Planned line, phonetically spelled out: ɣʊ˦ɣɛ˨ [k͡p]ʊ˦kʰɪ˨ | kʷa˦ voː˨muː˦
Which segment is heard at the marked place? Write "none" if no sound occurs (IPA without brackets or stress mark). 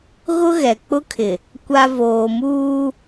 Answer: k͡p